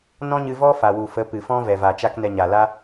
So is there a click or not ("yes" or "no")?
no